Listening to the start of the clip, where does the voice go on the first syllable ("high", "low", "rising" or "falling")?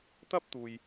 high